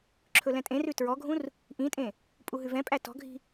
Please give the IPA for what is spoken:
ǁʰɵlɛ̃tʼẽrʉ tɹɔɡʱũr | ʔĩtʼẽ | pʼuɦʉvɛ̃pʼæ tɔ̤ɡʱi̤

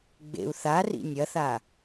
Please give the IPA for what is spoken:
ɡ͡bḛu̯ θarḭ nʲɐθa

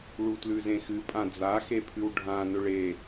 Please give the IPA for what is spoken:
ɭutlʉzẽxɨ pʼãd͡za xepʰʉwɖʱã nɵɭe

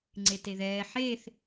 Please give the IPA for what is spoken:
ŋ͡ǀeteðɛː ħeːθ

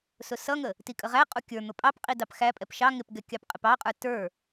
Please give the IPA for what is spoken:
sʊsʌŋə | tikʼəʁæqʼu kʲə˞n̪ʊ pʼɑpqʼi dɑpxæpʼɛp ʃɑ ŋɪpɡɛ kʲɑpqʼɪpɑqʼə˞ tə˞

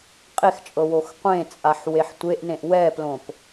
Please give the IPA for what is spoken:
qʼext͡ʃʼɤ woxqʷẽt͡sʼaħ weħtʷeʔnẽʔ wɛplõp

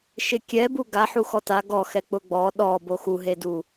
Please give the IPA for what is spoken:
ʃɪkʲɛbu ɡa ħuxɔta ɡɔxɛ k͡pʊɡ͡bɔ ɗɔ boxuɦedu

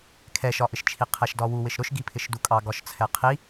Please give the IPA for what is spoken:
kʰɛʃɒʔɪʃt͡ʃʰi qʰɛʃdɒwu wɪʃɾʊʃɡipʰɪʃ dukʼɑɡɒʃt͡sʰɛ qʰi

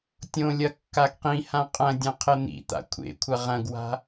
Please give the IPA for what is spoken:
tʲõlʲɐ kːaɡqĩhã qʼɐ̃dʲɐ̃ qʰɘn̪ḭt̪a̰ kʷʰḛ kʷʰɐʁɐ̃ɡwa̤

